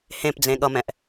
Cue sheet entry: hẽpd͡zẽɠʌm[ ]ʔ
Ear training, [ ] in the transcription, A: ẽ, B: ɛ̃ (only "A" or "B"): B